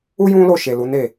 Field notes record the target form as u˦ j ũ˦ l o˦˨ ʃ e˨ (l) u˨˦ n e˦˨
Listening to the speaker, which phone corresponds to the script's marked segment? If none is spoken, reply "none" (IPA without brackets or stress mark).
l